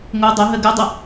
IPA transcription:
ŋ o dˤ o ɦ ɜ ɡ ɜ dˤ ə

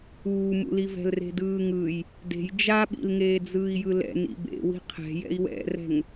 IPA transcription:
uː m ṵ l i v ɛ̤ l r e̤ d ɯː ŋ ɯ j | d e̤ j d͡ʒ a ɓ ḭ l ŋ eː d͡z ɯː i̯ j ɯ l ɛ̰ n ḭ b ḛ w i̤ qʰ ɛ̤ j ɛ̰ i̯ w ɛ̰ r ɛ̤ ŋ

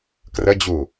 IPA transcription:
k r ə d͡ʑ u

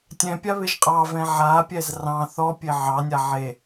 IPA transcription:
tʲ ɛ̃ pʲ a β ɪ ʒ qʼ ɑ v ɛ̃ ʕ a pʲ ɛ z r ɑ̃ θ ɔ pʲ e ʕ ɑ nʲ a ʕ e

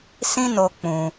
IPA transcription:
s ĩ˦ n o˧ k͡p ũ˧

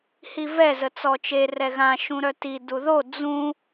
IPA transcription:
h i v ɛ z ə t͡s ɔ t͡ʃ e r ɛ ɣ ã ʃ ũ ɾ œ t i d u ð o d͡z ũ

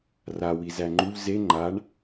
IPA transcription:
r a w i z æ ŋ͡ǃ u ʎ z e ŋ͡ǃ a ɳ

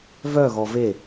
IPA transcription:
v œ ɣ ɔ v e

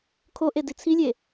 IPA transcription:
kʰ o ʔ e d i t͡sʰ i lʲ e

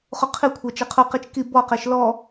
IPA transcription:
χ u qʰ i kʷʰ ɛ t͡ʃ e qʰ u q i t͡ʃ k i b ɔ q e ʃ l ɔ

